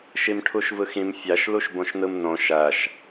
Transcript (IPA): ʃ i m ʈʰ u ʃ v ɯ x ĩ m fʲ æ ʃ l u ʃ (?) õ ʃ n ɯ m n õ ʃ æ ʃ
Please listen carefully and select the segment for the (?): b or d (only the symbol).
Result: b